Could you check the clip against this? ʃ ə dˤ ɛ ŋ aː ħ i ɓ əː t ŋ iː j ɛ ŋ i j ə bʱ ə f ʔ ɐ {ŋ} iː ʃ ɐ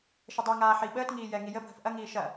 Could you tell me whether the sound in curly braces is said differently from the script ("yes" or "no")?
no